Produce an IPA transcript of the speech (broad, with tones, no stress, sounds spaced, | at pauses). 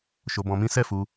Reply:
ʃ o˧ b ɔ̃˧ m ĩ˦ s ɛ˦˨ f u˧